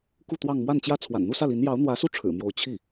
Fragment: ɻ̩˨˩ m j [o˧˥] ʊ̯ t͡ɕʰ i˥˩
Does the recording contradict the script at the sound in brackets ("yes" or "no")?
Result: no